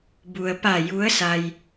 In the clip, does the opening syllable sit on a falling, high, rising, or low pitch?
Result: low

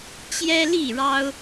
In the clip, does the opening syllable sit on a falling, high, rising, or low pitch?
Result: high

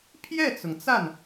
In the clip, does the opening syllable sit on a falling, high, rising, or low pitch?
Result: falling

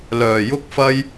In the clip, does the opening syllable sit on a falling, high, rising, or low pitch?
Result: low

